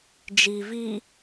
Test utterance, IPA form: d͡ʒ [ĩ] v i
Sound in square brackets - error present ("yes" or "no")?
yes